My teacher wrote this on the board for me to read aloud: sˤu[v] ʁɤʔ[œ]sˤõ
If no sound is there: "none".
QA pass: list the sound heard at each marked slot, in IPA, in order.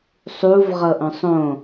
v, œ̃

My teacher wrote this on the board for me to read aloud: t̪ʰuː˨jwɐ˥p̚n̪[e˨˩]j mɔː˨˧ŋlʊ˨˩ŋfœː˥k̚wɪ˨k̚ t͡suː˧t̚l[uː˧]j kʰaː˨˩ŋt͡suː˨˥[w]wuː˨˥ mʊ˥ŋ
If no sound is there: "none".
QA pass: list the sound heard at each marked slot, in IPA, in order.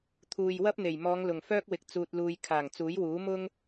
e˨˩, uː˧, j

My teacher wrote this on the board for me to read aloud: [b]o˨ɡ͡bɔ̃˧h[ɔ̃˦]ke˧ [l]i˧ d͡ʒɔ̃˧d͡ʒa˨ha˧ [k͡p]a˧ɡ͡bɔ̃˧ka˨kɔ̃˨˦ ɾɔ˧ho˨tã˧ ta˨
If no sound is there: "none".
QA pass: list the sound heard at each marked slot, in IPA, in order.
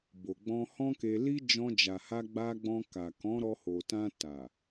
b, ɔ̃˦, l, ɡ͡b

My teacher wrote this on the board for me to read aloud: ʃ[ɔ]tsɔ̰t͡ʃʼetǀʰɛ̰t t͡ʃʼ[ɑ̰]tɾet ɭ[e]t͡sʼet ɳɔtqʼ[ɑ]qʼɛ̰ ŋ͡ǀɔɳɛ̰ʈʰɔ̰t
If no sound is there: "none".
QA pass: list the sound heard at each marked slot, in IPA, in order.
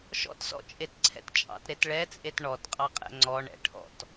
ɔ̰, ɑ̰, ɛ, ɑ

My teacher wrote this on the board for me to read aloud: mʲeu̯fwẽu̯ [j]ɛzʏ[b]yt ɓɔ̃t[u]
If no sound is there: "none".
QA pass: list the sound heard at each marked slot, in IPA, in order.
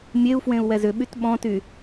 w, ɓ, y

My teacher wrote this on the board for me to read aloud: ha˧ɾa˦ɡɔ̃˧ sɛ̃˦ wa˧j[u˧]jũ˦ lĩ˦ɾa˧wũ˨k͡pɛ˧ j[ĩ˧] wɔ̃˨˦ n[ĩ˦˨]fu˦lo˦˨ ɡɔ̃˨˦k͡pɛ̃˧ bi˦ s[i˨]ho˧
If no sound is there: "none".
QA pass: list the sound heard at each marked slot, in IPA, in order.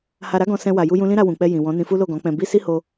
u˦, ĩ˨, ĩ˧, i˦

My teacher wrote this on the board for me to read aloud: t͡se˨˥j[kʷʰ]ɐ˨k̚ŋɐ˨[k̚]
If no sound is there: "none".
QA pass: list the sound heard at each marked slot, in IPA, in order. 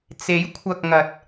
kʷʰ, t̚

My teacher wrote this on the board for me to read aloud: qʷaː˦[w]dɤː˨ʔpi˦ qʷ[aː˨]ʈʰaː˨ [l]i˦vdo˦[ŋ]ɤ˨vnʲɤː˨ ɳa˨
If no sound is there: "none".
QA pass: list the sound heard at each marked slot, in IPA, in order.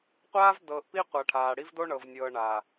v, a˨, ɽ, ɳ

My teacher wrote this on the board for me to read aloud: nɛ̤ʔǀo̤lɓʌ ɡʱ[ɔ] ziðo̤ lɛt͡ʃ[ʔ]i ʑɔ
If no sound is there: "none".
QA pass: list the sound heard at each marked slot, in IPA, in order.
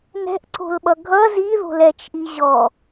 ʌ, ʔ

